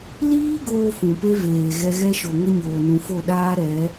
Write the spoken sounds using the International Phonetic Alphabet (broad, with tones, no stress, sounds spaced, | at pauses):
l iː˦ ɡ oː˦ f ũ˨ p e˦ v eː˨ ɣ ɛ˧ ɣ ɛ˦ ʃ o˨ ŋ ə˦ ɲ oː˨ n ũ˨ f o˦˨ ɗ aː˦ ɾ ɛ˨˦